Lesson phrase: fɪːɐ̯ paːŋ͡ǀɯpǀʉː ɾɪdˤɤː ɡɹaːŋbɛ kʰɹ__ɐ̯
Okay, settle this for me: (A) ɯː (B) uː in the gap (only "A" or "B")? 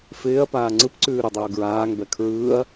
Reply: A